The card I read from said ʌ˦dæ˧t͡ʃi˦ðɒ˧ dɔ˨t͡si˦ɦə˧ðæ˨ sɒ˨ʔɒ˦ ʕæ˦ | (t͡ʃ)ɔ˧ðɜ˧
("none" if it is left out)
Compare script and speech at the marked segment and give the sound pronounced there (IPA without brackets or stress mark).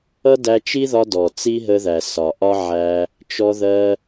t͡ʃ